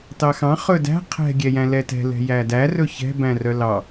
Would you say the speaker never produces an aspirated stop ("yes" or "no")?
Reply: no